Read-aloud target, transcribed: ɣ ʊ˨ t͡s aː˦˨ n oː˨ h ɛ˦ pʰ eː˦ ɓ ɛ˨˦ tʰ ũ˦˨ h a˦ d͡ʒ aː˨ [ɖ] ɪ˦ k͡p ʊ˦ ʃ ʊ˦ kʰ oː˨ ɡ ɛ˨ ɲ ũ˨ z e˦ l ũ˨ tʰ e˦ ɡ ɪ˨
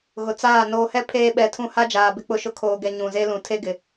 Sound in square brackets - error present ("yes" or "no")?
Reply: yes